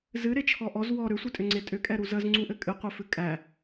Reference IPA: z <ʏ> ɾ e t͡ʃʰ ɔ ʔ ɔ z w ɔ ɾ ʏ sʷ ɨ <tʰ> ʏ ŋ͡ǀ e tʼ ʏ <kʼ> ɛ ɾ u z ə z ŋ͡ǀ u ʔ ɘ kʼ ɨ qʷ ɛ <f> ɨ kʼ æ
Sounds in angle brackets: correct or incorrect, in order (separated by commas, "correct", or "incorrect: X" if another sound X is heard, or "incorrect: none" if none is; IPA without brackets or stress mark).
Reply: incorrect: ɨ, incorrect: tʼ, correct, correct